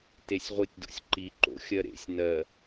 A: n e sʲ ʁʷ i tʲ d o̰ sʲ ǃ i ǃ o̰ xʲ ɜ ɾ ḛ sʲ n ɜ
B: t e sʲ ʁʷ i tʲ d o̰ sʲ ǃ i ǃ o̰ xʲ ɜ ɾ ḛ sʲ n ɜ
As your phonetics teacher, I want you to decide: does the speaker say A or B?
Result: B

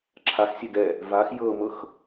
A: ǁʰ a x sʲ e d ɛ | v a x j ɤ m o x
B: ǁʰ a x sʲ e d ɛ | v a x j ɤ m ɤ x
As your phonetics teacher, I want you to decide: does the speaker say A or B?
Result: B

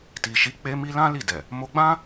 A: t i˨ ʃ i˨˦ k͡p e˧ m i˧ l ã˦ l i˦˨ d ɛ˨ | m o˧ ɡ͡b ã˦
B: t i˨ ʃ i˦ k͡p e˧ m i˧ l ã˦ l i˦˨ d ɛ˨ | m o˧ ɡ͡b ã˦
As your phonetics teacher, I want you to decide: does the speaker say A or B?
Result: A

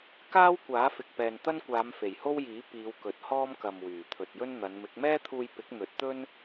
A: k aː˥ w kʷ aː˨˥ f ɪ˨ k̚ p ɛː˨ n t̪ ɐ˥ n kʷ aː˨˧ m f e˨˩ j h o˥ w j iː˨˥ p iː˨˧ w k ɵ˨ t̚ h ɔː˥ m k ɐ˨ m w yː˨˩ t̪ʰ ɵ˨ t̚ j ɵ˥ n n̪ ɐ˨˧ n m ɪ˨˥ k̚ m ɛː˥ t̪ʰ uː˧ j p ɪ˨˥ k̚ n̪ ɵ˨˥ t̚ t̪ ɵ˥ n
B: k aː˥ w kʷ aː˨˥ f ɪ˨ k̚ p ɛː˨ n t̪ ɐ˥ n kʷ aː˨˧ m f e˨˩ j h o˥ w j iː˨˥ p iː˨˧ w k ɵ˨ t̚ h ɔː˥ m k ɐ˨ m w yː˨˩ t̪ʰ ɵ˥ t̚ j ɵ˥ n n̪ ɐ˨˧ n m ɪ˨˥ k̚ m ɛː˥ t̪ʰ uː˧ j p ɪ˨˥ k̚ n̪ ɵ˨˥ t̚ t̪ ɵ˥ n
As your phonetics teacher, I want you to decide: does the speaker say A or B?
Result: A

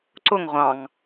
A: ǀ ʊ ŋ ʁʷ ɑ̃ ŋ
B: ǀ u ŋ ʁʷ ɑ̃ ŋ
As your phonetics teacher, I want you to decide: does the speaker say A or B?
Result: A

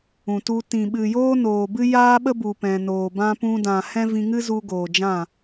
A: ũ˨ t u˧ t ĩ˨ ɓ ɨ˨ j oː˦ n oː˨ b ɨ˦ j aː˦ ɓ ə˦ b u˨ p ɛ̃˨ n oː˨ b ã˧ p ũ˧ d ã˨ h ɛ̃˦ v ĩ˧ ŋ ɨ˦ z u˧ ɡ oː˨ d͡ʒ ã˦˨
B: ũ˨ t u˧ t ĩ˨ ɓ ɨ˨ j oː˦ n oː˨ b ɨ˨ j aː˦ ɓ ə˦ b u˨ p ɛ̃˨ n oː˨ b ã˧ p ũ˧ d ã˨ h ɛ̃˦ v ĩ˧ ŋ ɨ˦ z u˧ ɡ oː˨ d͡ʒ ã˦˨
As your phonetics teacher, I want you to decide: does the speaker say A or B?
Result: A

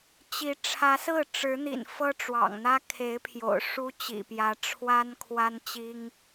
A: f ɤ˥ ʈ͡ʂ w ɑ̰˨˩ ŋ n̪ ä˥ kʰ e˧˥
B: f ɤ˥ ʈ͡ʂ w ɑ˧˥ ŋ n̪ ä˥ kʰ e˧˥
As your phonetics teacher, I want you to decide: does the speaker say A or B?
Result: A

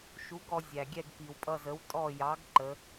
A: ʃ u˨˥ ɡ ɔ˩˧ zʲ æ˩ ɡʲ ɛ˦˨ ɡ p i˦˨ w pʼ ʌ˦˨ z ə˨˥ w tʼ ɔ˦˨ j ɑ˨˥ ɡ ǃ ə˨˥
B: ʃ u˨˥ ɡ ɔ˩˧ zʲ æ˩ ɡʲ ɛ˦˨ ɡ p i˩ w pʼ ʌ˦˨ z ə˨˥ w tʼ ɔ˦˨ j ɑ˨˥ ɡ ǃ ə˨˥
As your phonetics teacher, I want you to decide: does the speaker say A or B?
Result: B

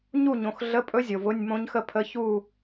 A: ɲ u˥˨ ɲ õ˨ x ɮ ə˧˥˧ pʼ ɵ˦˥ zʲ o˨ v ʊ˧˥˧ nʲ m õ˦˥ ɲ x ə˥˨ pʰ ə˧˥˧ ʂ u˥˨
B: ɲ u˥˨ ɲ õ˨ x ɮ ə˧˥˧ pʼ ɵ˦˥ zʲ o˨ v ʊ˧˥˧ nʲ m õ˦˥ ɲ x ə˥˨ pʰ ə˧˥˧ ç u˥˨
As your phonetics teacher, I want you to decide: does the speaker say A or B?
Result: B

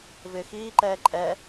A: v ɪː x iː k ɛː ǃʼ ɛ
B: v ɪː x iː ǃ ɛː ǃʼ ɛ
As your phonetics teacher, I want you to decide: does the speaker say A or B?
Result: B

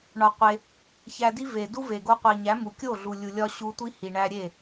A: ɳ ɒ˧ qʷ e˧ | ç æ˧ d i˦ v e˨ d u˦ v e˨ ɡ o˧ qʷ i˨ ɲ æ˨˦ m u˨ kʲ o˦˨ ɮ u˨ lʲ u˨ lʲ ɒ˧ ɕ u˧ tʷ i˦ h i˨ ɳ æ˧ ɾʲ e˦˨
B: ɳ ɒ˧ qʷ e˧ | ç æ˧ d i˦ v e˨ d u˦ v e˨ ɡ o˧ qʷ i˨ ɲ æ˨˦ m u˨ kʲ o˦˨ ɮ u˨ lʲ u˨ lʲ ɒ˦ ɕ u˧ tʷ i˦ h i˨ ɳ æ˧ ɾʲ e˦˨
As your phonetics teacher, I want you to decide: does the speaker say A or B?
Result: A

